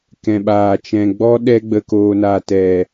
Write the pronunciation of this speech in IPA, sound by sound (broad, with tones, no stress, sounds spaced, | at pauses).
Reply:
k ɛ̃˨ ɓ aː˨ t͡ʃ ɛ̃˨ ɡ͡b ɔ˦ ɗ ɛ˧ ɡ͡b ə˨ k oː˨ n aː˨ t ɛ˨